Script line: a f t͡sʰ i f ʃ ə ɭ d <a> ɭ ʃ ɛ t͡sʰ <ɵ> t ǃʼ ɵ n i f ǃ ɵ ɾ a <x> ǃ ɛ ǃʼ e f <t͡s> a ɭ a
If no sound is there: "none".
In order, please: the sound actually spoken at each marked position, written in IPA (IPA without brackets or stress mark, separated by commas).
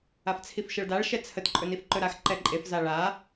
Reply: a, ə, x, z